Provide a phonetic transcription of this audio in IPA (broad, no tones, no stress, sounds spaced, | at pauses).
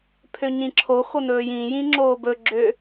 pʰ ø ɲ ĩ ǁʰ o x o n ɵː j ĩ j ĩ ŋ͡ǁ oː b ɵ ɡ͡ǁ ø